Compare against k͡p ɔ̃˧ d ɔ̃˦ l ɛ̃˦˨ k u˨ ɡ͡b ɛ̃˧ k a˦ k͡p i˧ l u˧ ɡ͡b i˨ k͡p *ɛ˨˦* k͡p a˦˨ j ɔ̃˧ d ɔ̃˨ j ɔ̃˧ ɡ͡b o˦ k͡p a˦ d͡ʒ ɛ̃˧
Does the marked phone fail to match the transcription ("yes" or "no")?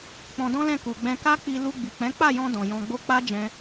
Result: yes